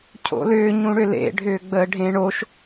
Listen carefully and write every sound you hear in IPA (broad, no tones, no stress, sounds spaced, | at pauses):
cʰ o̰ l ʏː ɲ ũ ɽ ʏ l ḛ ɖʱ ʏː ɡ͡b əː ɖʱ ẽ ɳ o ʃ